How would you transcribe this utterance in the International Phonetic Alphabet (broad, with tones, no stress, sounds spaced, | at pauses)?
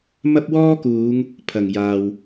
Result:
m ɐ˥ p̚ w ɔː˥ k uː˨˧ ŋ | pʰ ɐ˨˩ ŋ j aː˨ w